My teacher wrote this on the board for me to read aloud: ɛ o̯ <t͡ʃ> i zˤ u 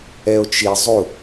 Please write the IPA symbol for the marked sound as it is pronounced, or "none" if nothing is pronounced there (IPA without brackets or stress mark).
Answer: t͡ʃ